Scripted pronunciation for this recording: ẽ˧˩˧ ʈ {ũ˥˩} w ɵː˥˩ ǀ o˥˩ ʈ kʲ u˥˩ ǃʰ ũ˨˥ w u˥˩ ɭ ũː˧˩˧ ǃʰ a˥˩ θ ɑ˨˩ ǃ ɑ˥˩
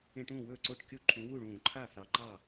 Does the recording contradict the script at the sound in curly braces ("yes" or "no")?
no